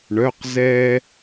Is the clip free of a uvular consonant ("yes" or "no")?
no